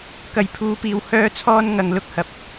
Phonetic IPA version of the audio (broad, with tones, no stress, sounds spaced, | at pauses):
k ɐ˨ j pʰ uː˨˧ p iː˨ w h œː˥ t͡sʰ ɔː˥ n ŋ ɐ˧ ŋ l ʊ˥ k̚ h ɐ˧ p̚